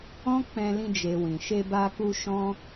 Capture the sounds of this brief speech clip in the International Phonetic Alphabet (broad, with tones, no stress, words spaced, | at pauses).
ɔ̃˦k͡pɛ̃˧lĩ˧ d͡ʒe˨ wĩ˨ʃe˧ba˧ ku˧ ʃɔ̃˦